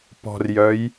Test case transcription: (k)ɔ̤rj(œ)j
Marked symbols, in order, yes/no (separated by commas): no, yes